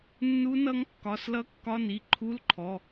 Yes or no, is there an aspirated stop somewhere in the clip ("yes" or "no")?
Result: yes